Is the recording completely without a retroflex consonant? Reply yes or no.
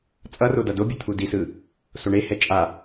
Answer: no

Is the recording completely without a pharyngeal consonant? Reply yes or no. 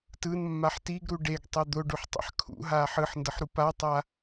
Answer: no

